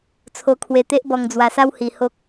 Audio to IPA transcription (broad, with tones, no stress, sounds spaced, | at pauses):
t͡sʰ o˧ kʰ w e˧ t̪ e˦ ʔ b ɔ˧ ŋ d͡z w a˧ s a˦ w h i˧ h o˦ k̚